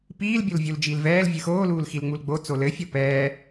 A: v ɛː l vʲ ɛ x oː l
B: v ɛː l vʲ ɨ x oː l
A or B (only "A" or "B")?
B